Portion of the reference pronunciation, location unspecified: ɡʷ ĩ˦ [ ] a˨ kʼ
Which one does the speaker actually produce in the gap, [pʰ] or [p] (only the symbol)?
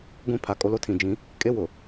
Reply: pʰ